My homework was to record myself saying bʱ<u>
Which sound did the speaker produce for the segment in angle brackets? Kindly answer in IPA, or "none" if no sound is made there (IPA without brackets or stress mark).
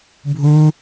u